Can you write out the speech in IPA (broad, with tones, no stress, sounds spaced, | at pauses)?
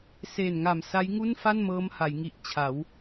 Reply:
s e˨˩ n ŋ a˨˩ m s a˦˥ j ŋ u˥˩ n f a˥˩ n m ɤː˦˥ m h a˩˦ j ŋ i˨˩ ʔ t͡ɕʰ a˩˦ w